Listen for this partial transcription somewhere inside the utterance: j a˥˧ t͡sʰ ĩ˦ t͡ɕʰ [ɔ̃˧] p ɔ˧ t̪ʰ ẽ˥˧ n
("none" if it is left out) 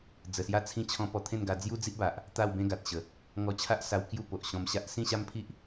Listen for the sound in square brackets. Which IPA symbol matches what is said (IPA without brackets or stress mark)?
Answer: ɔ̃˧